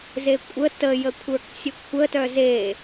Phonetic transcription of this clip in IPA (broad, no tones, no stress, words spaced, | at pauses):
zekʷʼə təjəkʷʰə˞k sʲəkʷʰətœ ze